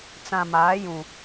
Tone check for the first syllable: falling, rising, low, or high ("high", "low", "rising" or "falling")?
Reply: low